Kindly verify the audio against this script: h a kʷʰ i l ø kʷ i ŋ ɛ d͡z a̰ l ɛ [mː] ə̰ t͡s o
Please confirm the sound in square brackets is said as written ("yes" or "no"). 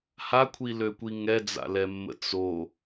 yes